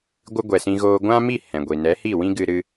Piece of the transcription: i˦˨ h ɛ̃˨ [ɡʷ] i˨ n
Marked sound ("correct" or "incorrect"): correct